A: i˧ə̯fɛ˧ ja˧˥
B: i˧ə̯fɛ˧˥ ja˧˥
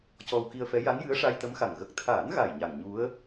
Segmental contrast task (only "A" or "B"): B